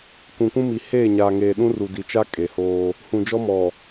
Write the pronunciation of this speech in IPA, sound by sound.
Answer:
k ũ˨ kʷ ũ˦ m i˨ h eː˦˨ ɲ aː˨ ŋ eː˨ ɗ ũ˦ r u˨ d i˨ t͡ʃ a˦ kʼ e˨ h oː˦ | h ũ˨ d͡ʒ ɔ˦ m ɔ˨

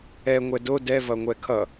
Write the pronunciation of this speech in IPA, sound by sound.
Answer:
ɛ ŋʷ ɛ d o d ɛ v ʌ ŋʷ ɛ kʰ ʌ

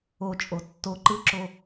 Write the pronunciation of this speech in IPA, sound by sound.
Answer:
o t͡ʃʼ o tː o ǃ ɯ ǁ o

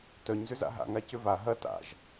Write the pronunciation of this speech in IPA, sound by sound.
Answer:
t œ ɲ z ʏ z a̰ ɦ a̰ ŋ a c ʏ v a ɦ ɐ t a̰ ʒ

